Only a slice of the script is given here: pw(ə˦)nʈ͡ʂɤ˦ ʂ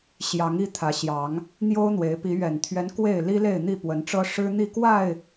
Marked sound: incorrect: ə˨˦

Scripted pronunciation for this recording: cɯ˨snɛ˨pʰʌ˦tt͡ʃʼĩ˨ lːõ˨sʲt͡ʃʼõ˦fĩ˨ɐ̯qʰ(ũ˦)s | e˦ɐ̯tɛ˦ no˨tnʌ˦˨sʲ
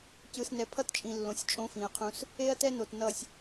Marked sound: correct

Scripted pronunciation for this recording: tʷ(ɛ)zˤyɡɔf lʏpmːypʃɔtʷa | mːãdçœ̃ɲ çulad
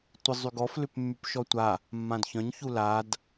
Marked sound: incorrect: ɪ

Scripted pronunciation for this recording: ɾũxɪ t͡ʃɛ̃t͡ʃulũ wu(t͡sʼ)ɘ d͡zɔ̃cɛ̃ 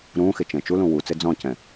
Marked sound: incorrect: t͡s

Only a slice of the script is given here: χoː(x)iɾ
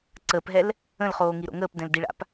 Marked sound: incorrect: ŋ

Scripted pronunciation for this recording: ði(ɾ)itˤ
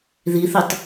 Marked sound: incorrect: θ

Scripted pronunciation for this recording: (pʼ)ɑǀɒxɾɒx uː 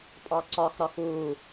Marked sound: correct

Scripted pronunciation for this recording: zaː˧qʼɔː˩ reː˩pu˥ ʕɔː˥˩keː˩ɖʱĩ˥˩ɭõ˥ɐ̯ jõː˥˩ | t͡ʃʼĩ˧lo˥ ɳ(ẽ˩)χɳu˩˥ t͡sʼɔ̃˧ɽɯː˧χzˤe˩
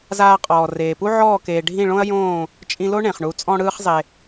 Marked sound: correct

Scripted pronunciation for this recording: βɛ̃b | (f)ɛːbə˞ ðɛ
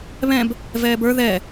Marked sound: incorrect: v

